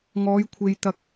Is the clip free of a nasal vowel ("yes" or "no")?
yes